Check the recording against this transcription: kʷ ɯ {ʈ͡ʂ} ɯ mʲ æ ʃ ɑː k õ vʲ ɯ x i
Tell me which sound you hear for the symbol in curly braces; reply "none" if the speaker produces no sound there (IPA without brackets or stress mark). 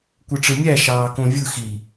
ʈ͡ʂ